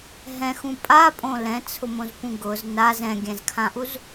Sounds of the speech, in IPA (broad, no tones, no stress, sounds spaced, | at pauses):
ɦ ɛ̃ x ũ pʼ a pʼ õ l ɛ̃ t͡sʰ ʊ m õ z p ũ ɡ ʊ z n a z ɛ̃ ɡʲ ɛ̃ z kʰ ã ʔ u z